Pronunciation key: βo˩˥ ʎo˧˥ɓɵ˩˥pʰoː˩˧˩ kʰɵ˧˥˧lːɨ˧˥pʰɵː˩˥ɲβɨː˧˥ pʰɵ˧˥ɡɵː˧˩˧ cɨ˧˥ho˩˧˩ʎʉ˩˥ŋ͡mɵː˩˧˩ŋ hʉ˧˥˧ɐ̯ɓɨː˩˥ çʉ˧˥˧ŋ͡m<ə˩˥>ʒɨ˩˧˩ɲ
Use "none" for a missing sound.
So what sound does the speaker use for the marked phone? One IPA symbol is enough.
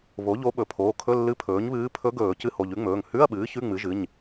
ɨ˩˥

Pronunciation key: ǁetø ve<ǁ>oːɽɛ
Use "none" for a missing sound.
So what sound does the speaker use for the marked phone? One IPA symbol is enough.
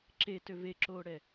ǁ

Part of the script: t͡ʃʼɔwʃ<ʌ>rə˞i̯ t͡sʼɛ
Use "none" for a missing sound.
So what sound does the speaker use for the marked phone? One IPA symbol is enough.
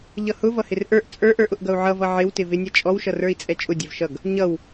ʌ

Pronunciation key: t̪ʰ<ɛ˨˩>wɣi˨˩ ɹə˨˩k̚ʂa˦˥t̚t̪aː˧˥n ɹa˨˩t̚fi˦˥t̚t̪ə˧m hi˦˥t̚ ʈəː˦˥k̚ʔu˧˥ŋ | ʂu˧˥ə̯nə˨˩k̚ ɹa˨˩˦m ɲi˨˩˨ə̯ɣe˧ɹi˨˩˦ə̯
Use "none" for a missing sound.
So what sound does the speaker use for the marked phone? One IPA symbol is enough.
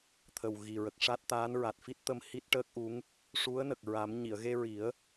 ə˨˩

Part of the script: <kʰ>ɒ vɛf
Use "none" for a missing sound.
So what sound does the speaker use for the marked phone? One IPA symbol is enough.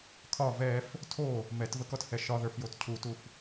kʰ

